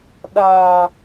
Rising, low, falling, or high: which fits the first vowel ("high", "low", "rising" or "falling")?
low